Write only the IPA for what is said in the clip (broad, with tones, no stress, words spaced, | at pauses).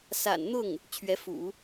sa̰˨˩nn̪ʊ˥˩ŋ | t͡ɕʰɥɛ˧˥fṵ˨˩˦